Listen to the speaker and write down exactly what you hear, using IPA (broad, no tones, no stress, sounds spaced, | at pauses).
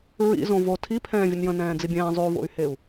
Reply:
ɹ ḭ z õ v o tʰ i pʰ ɛ̃ː vʲ ə n j ə̃ n ɛ̃ː d͡z i bʲ ɛ̃ː zˤ y u̯ v o̰ y̯ h e u̯